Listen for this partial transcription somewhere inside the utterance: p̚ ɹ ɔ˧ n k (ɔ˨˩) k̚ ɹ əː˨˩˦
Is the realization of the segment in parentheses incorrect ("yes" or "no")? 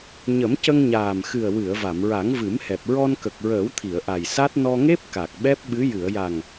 yes